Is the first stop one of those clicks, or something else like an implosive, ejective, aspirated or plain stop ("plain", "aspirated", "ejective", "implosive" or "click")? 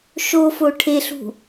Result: aspirated